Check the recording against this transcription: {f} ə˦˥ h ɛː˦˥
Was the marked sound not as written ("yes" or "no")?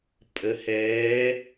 yes